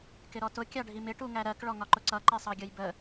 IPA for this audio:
k ɪ ɾ ɔ t ʊ kʲ ɑ ɖʱ i m ɪ ʈ u ŋ æ ɾ ɜ k ɭ ɔ ŋ ɒ ǃ ʊ ǀ ʌ ǃ ɛ sˤ ɑ ɡʲ ʌ j b ə

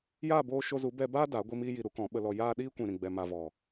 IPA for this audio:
j aː˦˨ b oː˧ ʃ o˧ z u˨˦ b ɛ˦ b aː˦ d a˨˦ ɡʷ i˧ m iː˧ j i˨ ɾ u˨˦ k ɔ̃˨˦ ɓ ə˧ l ɔ˧ j aː˦ ɗ iː˦ kʷ ĩ˨ ɾ ĩ˨ ɡ͡b ɛ˨ m a˨ v ɔ˨

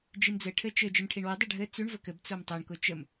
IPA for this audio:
d͡ʒ i m d͡z ɘ ʈʰ ɘ t͡ʃ ɘ d͡ʒ ɘ m ʈʰ i ɳ w ɘ dˤ ʊ ɖʱ ɘ t͡s ʉ ɳ v ə k ɘ b t͡s o m tˤ o ɳ k ʊ t͡ʃ ə m

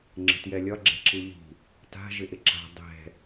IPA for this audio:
ŋ͡ǁ ə̤ t j ɛ lʲ ɒ ɡ͡ǁ ɛ̤ ǁ ɨ ʎ i̤ | t a̤ ʒ ɪ ʔ ɪ ǁ a̤ dˤ ɛ̤

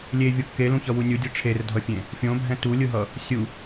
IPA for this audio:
lʲ e vʲ o kː e l ũ ç ʌ w u nʲ u dʲ ɯ ʈ͡ʂʰ e r dʱ ʌ fʲ ẽ | fʲ õ bʱ ɛ̃ t u lʲ ɯ ɦ ʌ | sʲ u

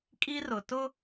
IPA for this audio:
kʼ i˦ r ʊ˨ t ʊ˦

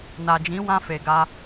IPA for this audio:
n a˨ d͡ʒ ĩ˨˦ w ã˧ f e˨ ɡ a˧

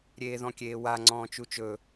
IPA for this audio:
ɾʲ eː ð ɔ̃ kʲ eː w a ŋ͡ǀ ɔ̃ː t͡ʃ u t͡ʃ ɵ

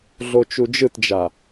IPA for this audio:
ɮ o t͡ʃ u d͡ʒ ɯ t d͡ʒ a

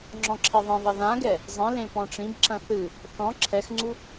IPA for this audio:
ŋ͡ǁ ɔ̃ ǁʰ i ðˤ ẽ ðˤ ɐ ð ã ɡ ɛ | zˤ ĩ l ẽ p ɔ̃ ʈ͡ʂ ĩ b ǁ ɐ̃ θ ɨ | θ ɔ̃ ǁʰ ɛ x ŋ͡ǀ u

